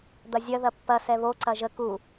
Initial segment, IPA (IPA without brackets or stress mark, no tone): d̪